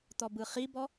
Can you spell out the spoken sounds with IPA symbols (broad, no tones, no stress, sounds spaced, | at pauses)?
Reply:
t̪ ɔ b ɯ χ i b ɔ